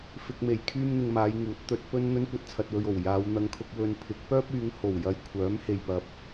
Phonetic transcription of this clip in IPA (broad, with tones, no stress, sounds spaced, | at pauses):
f ɪ˧ k̚ m e˨ j kʰ yː˥ m n̪ ɪ˧ ŋ m aː˨˧ j ŋ uː˨˥ t̚ t̪ ɵ˨˥ t̚ p ɵ˥ n n̪ ɵ˥ n kʷ ɐ˧ t̚ t͡sʰ ɐ˨ t̚ w ɵ˨ ɥ o˨˩ w j aː˨˧ w n̪ ɐ˧ ŋ kʰ ʊ˧ k̚ w ɵ˨ n pʰ ɪ˨˥ k̚ p œː˥ p̚ yː˨˧ ŋ h o˨˩ w j ɐ˨ j kʷʰ œː˨˥ m h e˨ j p ɐ˨ p̚